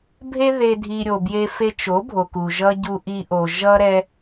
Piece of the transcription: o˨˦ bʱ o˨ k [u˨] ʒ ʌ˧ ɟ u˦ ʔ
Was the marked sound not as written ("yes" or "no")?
no